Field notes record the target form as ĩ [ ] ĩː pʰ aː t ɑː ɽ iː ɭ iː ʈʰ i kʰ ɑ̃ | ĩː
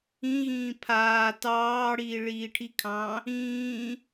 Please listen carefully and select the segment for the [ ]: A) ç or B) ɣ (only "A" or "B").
B